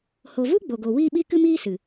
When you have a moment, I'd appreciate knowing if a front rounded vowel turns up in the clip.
no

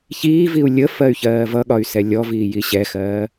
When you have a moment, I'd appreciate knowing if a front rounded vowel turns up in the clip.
yes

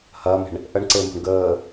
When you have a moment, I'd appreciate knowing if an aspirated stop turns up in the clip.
no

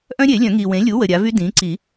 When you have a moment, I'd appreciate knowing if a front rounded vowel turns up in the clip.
yes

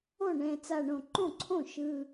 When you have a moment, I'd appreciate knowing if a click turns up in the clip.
yes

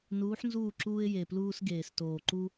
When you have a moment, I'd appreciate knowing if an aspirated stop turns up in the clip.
no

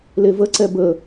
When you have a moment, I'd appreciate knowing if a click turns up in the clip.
yes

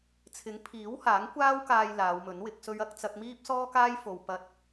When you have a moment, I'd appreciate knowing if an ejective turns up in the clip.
no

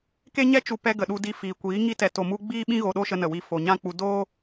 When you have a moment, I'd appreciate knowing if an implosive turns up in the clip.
yes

